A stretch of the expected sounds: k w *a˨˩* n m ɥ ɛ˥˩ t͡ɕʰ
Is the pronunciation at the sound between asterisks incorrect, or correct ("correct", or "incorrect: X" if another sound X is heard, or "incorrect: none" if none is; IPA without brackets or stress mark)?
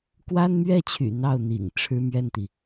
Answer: incorrect: a˥